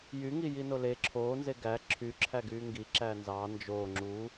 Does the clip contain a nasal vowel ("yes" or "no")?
no